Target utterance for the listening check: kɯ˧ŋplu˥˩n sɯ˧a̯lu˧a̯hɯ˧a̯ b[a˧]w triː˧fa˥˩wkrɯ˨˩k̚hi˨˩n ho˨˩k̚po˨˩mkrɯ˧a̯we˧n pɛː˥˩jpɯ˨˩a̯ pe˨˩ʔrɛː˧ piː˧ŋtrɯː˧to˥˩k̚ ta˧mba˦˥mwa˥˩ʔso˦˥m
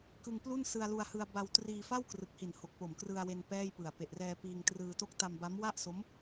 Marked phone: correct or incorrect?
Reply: correct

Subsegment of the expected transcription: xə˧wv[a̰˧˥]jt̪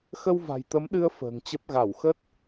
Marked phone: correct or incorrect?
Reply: incorrect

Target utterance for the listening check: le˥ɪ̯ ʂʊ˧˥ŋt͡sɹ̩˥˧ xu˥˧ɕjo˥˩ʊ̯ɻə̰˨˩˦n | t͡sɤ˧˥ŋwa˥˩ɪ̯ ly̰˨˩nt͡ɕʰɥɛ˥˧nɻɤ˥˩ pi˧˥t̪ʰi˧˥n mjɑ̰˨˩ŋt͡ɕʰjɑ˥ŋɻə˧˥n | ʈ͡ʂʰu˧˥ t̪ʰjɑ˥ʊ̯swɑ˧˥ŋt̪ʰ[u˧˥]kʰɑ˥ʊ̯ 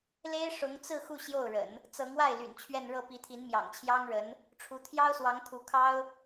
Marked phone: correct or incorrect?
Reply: correct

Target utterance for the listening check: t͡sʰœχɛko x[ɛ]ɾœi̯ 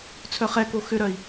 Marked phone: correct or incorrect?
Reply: incorrect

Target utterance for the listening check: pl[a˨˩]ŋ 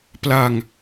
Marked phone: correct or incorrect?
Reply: incorrect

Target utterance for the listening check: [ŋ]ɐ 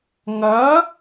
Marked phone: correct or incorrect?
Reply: correct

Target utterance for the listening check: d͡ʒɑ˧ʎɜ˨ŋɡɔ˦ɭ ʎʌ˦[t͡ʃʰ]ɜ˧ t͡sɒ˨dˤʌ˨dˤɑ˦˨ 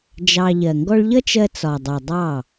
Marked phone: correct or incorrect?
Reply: incorrect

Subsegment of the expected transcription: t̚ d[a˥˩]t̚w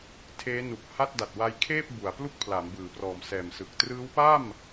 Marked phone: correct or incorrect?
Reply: incorrect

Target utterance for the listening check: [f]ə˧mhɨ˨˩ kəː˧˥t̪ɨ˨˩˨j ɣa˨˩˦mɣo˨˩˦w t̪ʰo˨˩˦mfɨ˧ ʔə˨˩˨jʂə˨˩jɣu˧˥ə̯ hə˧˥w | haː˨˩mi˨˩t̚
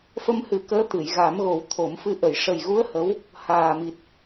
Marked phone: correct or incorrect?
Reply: correct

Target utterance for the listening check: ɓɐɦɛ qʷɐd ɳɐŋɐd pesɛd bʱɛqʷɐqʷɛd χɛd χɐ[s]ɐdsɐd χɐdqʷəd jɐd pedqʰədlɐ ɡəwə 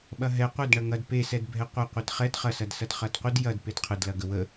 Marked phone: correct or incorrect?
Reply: correct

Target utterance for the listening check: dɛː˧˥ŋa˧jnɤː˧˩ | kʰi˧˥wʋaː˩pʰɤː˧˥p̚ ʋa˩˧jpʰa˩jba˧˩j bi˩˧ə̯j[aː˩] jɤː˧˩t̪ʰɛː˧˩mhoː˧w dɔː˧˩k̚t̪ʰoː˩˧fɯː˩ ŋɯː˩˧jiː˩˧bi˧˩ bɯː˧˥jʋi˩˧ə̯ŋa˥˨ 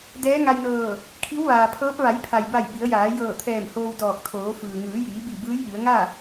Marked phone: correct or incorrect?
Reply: incorrect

